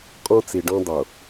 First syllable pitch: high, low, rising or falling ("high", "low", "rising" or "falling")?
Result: high